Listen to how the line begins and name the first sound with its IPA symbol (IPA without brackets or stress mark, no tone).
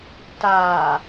t